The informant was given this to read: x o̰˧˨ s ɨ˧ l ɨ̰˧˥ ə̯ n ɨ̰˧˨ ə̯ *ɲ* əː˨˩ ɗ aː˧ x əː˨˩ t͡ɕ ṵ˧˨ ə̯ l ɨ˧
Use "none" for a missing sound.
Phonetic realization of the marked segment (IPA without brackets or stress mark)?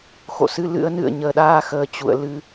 ɲ